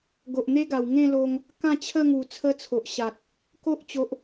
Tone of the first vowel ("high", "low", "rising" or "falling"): low